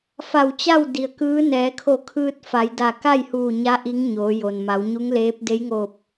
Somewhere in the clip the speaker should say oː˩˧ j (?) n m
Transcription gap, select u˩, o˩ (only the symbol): o˩